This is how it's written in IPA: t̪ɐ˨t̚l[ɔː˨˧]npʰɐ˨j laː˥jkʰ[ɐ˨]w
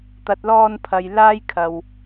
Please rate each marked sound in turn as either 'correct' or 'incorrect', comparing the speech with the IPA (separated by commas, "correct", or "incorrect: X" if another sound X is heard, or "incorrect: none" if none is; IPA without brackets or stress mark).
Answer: incorrect: ɔː˧, correct